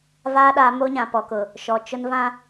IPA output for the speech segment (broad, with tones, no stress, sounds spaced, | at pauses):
v aː˦ ɗ a˨˦ m o˦ ɲ ã˨ p ɔ˨ k ʊ˨ | ʃ ɔ˨ t͡ʃ ʊ˦ n v ã˦